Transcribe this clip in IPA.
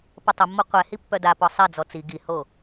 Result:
p ə tˤ ə mː ɔ qʷ ɛ h i pː œ d a p ɔ sˤ ɛ d͡z ɔ t͡s i ɡ i h o

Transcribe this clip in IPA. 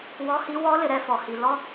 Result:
w ɔ˧˥ h i˧˥ w ɔ˧˥ l ɪ˩˧ ɾ ɛ˧ f ɔ˩ h i˩ l ɔ˥

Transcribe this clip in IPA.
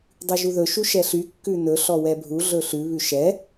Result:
dˤ ʉ ʒ u ð ɵ ʃ u ʃ ɛ ɬ y kː ʉ n ɵ ɬ ɔ w ɛ bʱ u ɮ ɵ ɬ ʉ β ʉ ʃ ɛ

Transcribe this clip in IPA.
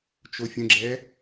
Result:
t͡ʃ o fʲ ə̃ ɡ͡ǁ ɛ

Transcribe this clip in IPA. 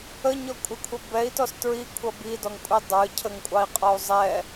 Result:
ə ɲ ɔ kʷʼ ɪ kʷʰ ə b ɛ i̯ t ɔ s t ɹ i kʷʰ ʌ b i d ɔ ŋ kʷʼ i dˤ ə˞ cʰ ə ŋ kʷʼ ɑ i̯ qʼ ɔ u̯ zˤ ɛ

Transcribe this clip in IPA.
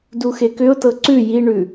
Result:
d u x e k ʏ ʊ̯ t ɤ ǀ ʉ j i ɳ ʉ

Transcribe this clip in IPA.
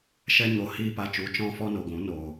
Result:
ʃ ɛ˦ ɲ o˧ h iː˦ p a˧ t͡ʃ u˨˦ t͡ʃ ɔ̃˦ f ɔ˦ n o˨ ɡʷ ũ˨˦ n o˨

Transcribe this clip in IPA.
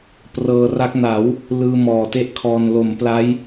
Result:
p r ɤː˧ r a˦˥ k̚ n a˩˦ w | l ɯː˧ m ɔː˨˩ t e˥˩ ʔ kʰ ɔː˧ n l o˩˦ m p l a˦˥ j

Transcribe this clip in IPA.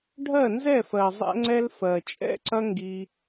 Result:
ɖʱ ɜ˦˨ n z ɛ˦˨ f ɜ˨ zˤ ɛ̰˦ ŋ͡ǀ ɛ˦ l f ɜ˨ t͡ʃʼ ɛ̰˦ ǀ ɐ˦ ŋ ɡ i˧

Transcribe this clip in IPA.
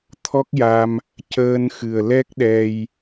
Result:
t̪ʰ ɔ˦˥ k̚ j a˧ m | c əː˧ n x ɨ˨˩ ə̯ l ɛ˦˥ k̚ ɗ ɛ˧ j

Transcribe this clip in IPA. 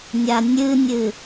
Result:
nʲ a nʲ ɨ nʲ ɨ

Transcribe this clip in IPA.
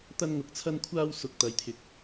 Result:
t̪ ɐ˧ n ŋ ʊ˨˥ k̚ t͡sʰ ɐ˧ n kʷʰ aː˧ w s ʊ˨ k̚ t̪ ɐ˨ j t̪ʰ ɪ˨˥ k̚

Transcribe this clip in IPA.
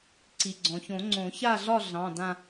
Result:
ǀ i˩ ɡ͡ǀ ɔ̃˩ ç õ˨˩˦ ŋ͡ǀ õ˨˩˦ ç a˥˧ ɮ ɒ˥˧ ɮ ɑ̃˩˧˩ d ã˥˧

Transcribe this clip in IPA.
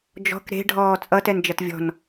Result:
d͡ʒ ɔ̤ k ɾ e̤ ɖʱ ɔː t͡sʼ ʌ t ɛ n d͡ʒ ʌ t vʲ ɔ̤ n

